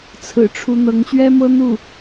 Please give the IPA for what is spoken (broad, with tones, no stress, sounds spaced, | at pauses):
t͡sʰ ɹ̩˨˩ ʈ͡ʂʰ u˧˥ n̪ ɤ˧˥ ŋ ɕ ɥ ɛ˥ m ɤ˥ n̪ u˥˩